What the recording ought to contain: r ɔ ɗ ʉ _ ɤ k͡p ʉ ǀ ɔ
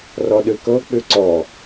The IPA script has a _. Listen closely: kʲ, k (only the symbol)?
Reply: k